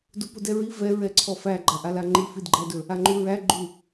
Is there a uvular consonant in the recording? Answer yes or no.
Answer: no